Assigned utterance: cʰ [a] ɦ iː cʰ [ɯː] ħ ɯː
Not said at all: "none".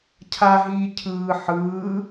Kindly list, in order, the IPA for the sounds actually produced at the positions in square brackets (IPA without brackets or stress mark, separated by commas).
a, ɯː